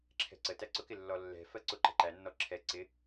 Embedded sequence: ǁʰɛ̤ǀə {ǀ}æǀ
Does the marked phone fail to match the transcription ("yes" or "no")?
yes